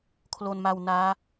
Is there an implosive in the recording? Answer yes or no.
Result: no